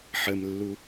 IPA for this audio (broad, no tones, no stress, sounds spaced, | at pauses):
ħ ə m lː u